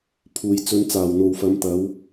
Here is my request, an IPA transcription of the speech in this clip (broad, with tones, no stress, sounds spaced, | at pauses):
pʰ uː˨ j t͡s ɵ˨˧ n t͡s aː˨˩ w n̪ o˨ w f ɐ˨˧ m t̪ ɐ˨˧ w